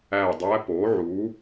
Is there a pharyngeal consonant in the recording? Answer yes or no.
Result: yes